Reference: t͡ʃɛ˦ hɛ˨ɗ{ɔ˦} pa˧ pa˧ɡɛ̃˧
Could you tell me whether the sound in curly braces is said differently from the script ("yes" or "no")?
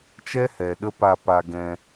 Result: yes